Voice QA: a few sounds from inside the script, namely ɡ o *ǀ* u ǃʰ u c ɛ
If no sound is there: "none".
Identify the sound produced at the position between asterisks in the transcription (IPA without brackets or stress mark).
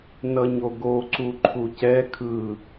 ǀ